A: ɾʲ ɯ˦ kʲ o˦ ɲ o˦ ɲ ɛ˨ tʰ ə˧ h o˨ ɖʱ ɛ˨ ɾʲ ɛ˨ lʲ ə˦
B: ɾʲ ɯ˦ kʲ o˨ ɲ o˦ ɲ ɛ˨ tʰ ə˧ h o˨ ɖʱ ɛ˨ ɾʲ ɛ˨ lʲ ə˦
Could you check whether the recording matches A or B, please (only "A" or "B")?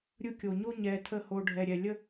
B